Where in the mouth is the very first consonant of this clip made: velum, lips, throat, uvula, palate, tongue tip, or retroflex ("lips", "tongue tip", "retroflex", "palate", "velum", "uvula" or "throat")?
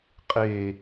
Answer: uvula